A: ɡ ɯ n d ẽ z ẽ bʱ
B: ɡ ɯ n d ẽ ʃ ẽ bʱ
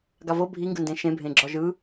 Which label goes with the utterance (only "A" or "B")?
B